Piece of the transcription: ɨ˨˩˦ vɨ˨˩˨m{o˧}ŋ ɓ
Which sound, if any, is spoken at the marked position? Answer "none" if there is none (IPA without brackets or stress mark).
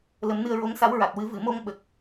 o˧